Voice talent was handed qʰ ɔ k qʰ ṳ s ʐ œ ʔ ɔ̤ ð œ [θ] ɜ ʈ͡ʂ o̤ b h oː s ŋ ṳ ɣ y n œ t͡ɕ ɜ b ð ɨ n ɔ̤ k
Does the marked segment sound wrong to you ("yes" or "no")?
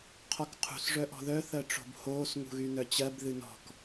no